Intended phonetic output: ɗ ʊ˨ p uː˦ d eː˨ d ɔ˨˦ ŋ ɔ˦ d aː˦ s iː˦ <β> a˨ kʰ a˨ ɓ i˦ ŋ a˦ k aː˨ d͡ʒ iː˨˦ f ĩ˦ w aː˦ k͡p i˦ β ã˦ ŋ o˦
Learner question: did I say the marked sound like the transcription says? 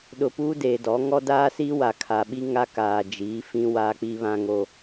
no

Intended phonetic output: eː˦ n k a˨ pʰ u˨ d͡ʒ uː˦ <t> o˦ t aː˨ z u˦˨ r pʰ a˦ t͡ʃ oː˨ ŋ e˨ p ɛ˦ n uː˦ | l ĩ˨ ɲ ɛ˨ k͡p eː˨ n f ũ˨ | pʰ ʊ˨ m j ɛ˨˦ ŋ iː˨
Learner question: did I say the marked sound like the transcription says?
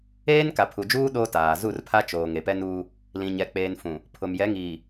no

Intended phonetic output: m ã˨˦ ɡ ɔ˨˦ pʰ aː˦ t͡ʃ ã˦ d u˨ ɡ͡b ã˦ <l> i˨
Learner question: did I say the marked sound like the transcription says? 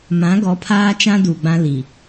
yes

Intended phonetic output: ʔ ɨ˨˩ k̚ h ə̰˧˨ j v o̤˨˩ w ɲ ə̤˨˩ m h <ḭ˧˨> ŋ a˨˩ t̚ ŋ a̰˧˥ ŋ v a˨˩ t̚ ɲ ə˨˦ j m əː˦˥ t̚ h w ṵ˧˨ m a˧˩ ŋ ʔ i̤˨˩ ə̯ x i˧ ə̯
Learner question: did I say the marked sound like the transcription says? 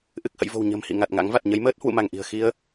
yes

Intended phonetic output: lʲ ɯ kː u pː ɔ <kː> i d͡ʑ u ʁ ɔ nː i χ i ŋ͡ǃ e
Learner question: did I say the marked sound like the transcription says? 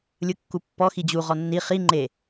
no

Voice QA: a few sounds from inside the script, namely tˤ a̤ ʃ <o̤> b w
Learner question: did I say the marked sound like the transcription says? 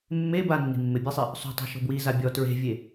yes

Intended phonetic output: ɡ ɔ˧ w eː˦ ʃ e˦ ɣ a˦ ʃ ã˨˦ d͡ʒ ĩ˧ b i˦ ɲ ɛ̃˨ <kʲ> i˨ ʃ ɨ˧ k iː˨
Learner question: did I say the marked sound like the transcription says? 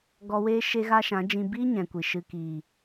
no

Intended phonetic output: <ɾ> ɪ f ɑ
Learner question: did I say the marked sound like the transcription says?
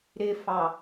yes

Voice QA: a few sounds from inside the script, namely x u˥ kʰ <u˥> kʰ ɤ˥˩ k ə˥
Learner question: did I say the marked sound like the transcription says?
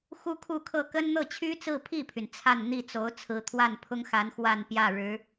no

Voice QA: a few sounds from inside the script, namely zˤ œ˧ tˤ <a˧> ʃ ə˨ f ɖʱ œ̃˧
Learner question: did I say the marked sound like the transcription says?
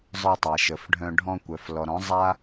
no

